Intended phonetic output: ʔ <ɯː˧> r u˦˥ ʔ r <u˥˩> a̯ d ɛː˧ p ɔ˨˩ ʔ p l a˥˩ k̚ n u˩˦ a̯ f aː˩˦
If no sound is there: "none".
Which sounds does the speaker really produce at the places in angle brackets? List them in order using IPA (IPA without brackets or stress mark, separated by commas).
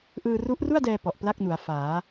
ɯː˧, u˥˩